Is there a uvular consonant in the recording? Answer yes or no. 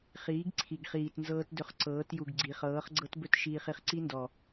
yes